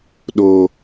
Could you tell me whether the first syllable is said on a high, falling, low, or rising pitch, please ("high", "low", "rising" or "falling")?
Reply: high